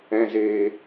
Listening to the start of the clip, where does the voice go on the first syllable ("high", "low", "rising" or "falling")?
low